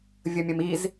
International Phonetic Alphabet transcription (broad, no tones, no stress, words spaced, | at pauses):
vʲəmʲəmiz